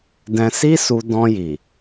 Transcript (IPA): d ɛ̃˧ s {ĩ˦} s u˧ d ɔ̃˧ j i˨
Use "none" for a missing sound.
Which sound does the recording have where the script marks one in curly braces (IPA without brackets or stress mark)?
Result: i˦